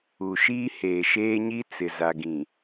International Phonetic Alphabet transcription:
u˨ ʃ iː˦ h eː˨ ʃ eː˦ ɲ i˦ t͡s ɪ˨ z a˨ ɡ ĩ˨

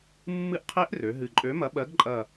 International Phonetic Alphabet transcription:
mː ɨ˦˥ ʔ qʰ e˦˥ ʔ r ø˩˧ ɦ ɨ˨˩ ǃʼ ø˨˥ m ɐ˨˥ ɓ ɜ˨˥ ɡ ǃʼ ɐ˨˩

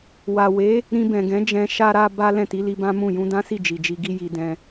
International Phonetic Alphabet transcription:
w a˨ w e˨˦ | ɾ ĩ˧ b ɛ̃˨ ɡ ɛ̃˨˦ d͡ʒ ɛ̃˧ ʃ a˧ ɾ a˧ b a˦ l ɛ̃˦˨ t i˨˦ l i˧ b ã˦ m ũ˦˨ j ũ˧ d ã˦ s i˦˨ d͡ʒ i˨ d͡ʒ i˧ ɡ i˦ j i˧ d ɛ̃˧

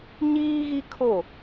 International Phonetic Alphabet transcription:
ɲ iː˦ ɣ i˦ kʰ o˦˨

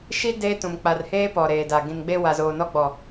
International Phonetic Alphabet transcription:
ʃ i˦ d eː˦ t ũ˨ m k͡p a˨ r h eː˦ p ɔ˨ ɾ eː˨ d a˨ ɡ ĩ˨ n ɡ͡b e˦ w a˨ z oː˨ n ɔ˦ ɡ͡b ɔ˨

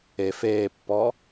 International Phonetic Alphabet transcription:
e f eː pː ɔː

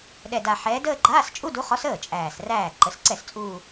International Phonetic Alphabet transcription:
ɗ ɛ˨˩ d a˨˩ ħ ɛː˨˦ d əː˥˧ ɡ͡ǃ aː˧˥˧ s t͡ʃʼ u˧˥˧ d u˨˦ χ ɔ˨˦ s əː˥˩ t͡ʃʼ æː˨˩ s r æː˥˩ ǃ ə˨˦ s ǀ ɛ˥˩ s t͡sʼ uː˥˧

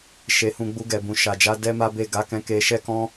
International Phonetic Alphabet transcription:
ʃ e˧ h ũ˧ ɡ͡b u˧ ɡ ɛ˨ b ũ˨ ʃ a˨ d͡ʒ a˨˦ d ɛ˦ m a˦ b e˦˨ ɡ a˨˦ k ɛ̃˧ k e˧ ʃ ɛ˦ k ɔ̃˦

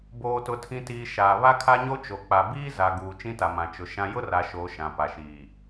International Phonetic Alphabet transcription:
b oː˨ t ʊ˨ tʰ ĩ˨ t iː˨ ʃ aː˨ β a˦ kʰ a˦ ɲ o˦ t͡ʃ o˨ k͡p a˨ b iː˦ z a˨ ɡ uː˨ t͡ʃ ĩ˦ t a˨ m ã˨ t͡ʃ ʊ˨ ʃ ã˦ j ʊ˦ r a˨ ʃ oː˨ ʃ ã˨ p a˨ ʃ iː˨

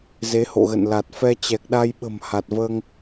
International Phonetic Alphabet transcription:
z e˨˦ h o̰˧˨ ɣ ə̰˧˨ n l a˨˩ t̚ f ɛ˧ t͡ɕ ɛ˨˩ k̚ ɗ a˧ j ɓ ə̤˨˩ m h a˨˩ t̚ v əː˧ ŋ

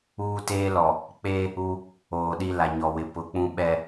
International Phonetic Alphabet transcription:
uː˦ t eː˦ l ɔ˨ | k͡p e˦ | u˦ | oː˨ ɗ i˦ l a˨ ɲ ɔ˨ w ɪ˨ p ʊ˨˦ k͡p ũ˦ ɓ ɛ˨

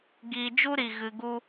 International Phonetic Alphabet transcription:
ɡ iː˧ d͡ʒ u˦ ɾ i˨ ɣ ɨ˧ ɡ u˦

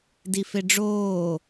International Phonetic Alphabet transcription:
d i f e ɖ͡ʐ oː

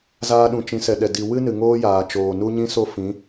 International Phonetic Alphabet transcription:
z aː˧ ɗ ũ˨ t͡ʃ ĩ˨˦ s ɛ˨ ɗ ɛ˨ d i˨ w ɨ˦ n ɨ˨ ŋ oː˦ j aː˨ t͡ʃ oː˨ n u˦ ɲ ĩ˦ s o˦ f ĩ˨˦

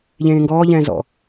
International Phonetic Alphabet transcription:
ʎ ẽː ŋ ɡ ɔː ʎ ɛ̃ː z ɔ̰

